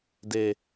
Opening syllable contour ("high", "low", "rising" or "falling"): low